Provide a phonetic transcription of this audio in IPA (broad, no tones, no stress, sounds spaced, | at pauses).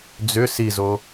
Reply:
d͡z ʏ s i z o